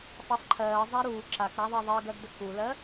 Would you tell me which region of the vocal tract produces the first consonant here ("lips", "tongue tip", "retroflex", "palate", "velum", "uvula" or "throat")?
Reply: lips